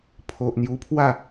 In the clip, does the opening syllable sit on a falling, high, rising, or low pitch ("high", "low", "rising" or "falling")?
low